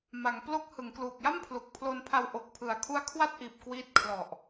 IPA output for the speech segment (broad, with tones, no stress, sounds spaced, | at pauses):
m a˩˦ ŋ p l o˦˥ k̚ h ɯ˩˦ ŋ k l uː˨˩ k̚ j a˥˩ m pʰ l u˨˩ k̚ pʰ l o˧ n pʰ a˧ w ʔ o˨˩ k̚ pʰ ɯ˩˦ a̯ kʰ u˦˥ a̯ kʰ w a˥˩ t̚ ʔ iː˨˩ p̚ k w iː˦˥ t̚ kʰ l ɔ˨˩ ʔ